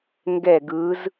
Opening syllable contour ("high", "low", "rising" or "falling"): falling